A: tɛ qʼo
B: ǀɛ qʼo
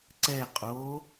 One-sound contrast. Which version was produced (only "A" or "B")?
B